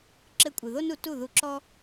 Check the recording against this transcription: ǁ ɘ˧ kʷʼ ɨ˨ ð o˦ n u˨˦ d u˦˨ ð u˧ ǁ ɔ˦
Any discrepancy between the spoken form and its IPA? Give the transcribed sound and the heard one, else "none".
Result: d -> t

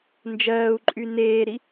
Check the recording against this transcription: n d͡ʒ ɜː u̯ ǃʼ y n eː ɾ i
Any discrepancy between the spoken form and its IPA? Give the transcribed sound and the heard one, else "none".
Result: none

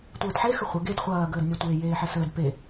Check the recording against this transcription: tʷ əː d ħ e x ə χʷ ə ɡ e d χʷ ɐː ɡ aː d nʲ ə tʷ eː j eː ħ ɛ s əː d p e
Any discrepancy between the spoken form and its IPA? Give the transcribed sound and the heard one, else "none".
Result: aː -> əː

